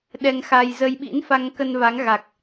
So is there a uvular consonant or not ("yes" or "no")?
no